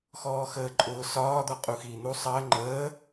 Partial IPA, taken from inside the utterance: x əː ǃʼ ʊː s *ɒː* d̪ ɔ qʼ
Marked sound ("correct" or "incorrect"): correct